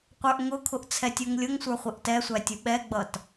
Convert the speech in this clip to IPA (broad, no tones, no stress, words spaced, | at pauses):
qʷə˞ʔŋʊkʰʊʔ t͡sʰɛtʲuŋlʲʊŋsʷə˞ χʷɪʔtɛsʷæ tʲuɓɛɡ͡bʌt